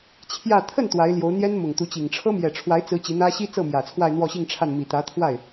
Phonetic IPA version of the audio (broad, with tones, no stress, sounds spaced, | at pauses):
t͡ɕʰ j ä˥˧ t̪ʰ ə˥˩ n t̪ w a˧˥ ɪ̯ l j o˧˥ ʊ̯ n̪ j ɛ˥ n m ʊ˨˩ ŋ t̪ u˧˥ t͡ɕ i˨˩ ŋ ʈ͡ʂʰ ɤ˥ m j ɛ˨˩ ʈ͡ʂʰ w a˧˥ ɪ̯ t͡s ɹ̩˧˥ t͡ɕ i˧˥ n̪ ä˥ ɕ i˥ t͡s ɤ˥˩ m j ä˨˩ t͡sʰ w a˥˧ ɪ̯ n̪ w ɔ˥˧ ɕ i˥˧ ŋ ʈ͡ʂʰ a˥˩ n m i˨˩ t̪ ä˧˥ t̪ʰ w a˥˩ ɪ̯